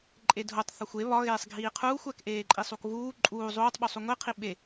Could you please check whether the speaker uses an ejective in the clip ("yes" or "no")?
yes